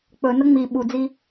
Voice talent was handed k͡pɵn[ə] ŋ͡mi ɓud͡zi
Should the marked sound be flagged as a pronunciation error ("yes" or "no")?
no